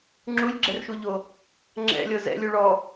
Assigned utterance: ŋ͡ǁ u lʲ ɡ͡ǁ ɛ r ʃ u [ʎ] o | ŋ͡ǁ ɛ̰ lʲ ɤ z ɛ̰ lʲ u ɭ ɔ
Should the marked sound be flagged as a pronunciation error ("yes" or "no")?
no